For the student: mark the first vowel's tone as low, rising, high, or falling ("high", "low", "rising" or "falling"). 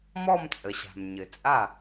falling